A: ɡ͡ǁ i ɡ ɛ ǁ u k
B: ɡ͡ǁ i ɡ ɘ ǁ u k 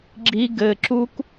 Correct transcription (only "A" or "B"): B